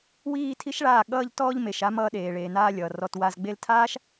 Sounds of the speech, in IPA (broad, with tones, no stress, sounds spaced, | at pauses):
w iː˧ tʰ i˦ ʃ ɭ aː˦˨ ɠ ʌː˧ ʎ t ɔː˧ ʎ m e˨ ʃ a˧ m ʌː˧ ɗ eː˨ ɭ eː˨ n aː˧ lʲ ʌː˨ r ɔ˧ t w a˧ z ɡ͡b e˦ l tʰ aː˦ ʃ